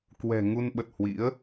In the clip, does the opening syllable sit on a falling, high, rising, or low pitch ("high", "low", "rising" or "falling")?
low